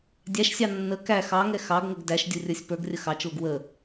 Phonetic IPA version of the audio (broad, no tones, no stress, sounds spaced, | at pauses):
dʲ æ ʃ sʲ ɑ nː ə k æ x ɑ ŋ ɛ x ɑ ɡ ŋ ə ɡ d æ ʃ dʲ u rʲ ə˞ sʲ p ə˞ ɡ rʲ ə x ɑ t͡ʃ l ʊ ɡ w ə